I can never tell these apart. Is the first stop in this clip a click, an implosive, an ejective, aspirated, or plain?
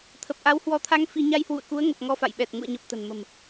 aspirated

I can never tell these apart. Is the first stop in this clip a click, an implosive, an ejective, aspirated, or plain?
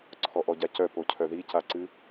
click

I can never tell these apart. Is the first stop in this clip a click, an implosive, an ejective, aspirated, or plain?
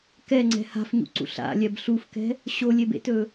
plain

